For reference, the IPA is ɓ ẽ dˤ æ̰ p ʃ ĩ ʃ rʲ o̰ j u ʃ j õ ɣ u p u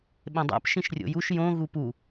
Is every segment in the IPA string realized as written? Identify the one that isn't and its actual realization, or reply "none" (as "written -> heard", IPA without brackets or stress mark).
none